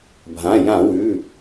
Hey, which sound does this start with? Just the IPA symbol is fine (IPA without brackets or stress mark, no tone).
bʱ